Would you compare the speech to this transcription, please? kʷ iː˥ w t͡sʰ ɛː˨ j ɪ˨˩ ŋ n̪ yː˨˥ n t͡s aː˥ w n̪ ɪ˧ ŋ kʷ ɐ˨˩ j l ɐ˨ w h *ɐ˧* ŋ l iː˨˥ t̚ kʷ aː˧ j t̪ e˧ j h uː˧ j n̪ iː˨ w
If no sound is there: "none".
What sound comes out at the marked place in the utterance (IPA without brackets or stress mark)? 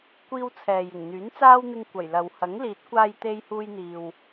ɐ˨˥